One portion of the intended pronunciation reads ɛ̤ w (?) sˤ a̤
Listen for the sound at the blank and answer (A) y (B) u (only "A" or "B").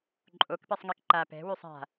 A